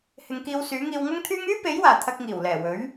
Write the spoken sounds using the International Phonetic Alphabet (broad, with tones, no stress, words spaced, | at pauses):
hɪ˨ŋkiː˧wsyː˨˥ŋiː˧w ŋɐ˥ŋt̪ʰyː˥ŋ yː˥pe˨˥jwaː˨˩ t̪ʰɐ˧k̚ŋiː˨˩wlɛː˨˩wɵ˨˥ɥ